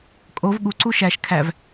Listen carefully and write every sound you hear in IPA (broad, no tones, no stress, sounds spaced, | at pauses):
kʼ o v ɠ u ǀ u ʃ æ ʃ kʰ æ v